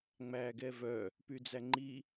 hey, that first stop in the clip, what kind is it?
plain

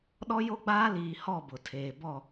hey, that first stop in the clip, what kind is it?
implosive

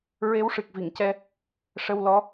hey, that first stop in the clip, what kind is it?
plain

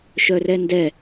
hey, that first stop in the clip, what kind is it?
plain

